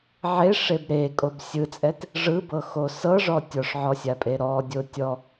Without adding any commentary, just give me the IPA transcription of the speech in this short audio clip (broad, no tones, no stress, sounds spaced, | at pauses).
ʕ e ʂ e b ɾ e kʼ o b sʲ ɯ t͡sʼ ɛ t | ʐ ɯ b ɤ x o s ɤ ʐ ɔ tʲ ɔ ʂ ʕ ɔ sʲ a pʼ e ɾ ɔ dʲ o tʲ ɔ